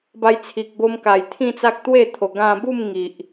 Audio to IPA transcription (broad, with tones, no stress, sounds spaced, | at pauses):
b a˧ j t͡sʰ i˨ k̚ b o˧ m k a˨˩ j t̪ʰ ĩ˥˧ t͡s a˦ k̚ t̪ w e˥˧ t̪ʰ o˨˩ ɡ ã˧ b u˥˧ m ŋ i˨ ʔ